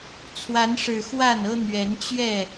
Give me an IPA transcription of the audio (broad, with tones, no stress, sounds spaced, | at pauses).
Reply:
t͡sʰ w a˨˦ n ʂ ɻ̩˨˩ x w a˥˨ n ɤ˦ n̪ ɥ ɛ˨˦ n t͡ɕ ɥ ɛ˥˨